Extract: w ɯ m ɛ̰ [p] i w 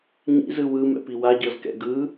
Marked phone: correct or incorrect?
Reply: correct